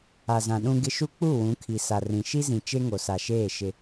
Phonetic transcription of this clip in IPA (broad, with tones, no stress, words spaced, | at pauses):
a˨zã˨ɗũ˦ɡɪ˦ ʃu˦k͡pu˦˨ wũ˨˦kʰi˨ sa˨rĩ˨ ʃi˦zĩ˨ t͡ʃe˦ŋo˨sa˨ʃeː˦˨ ʃɪ˦